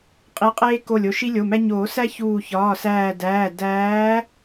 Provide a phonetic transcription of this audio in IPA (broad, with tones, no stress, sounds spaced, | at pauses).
qʼ i˨˦ qʼ eː˦ k o˧˩ lʲ o˧˩ ʃ i˦ lʲ o˩˧˩ m æ˦ ɲ oː˨˩˦ s æ˦ ç uː˧˩ ç ɒː˩˧˩ s æː˧˩ d æː˩˧˩ d æː˨˦